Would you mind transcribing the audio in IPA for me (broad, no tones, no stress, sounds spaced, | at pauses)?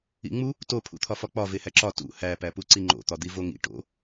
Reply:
ḭ ŋ͡m u | t o pʰ ṵ t̪ʰ ɒ f ɒ k͡p ɒ v e h æ ǁ ɒ t ṵ h æ p æ p u ǀ i ŋ͡ǃ o̰ t̪ ɒ d̪ i v o ŋ ḭ ʈ o̰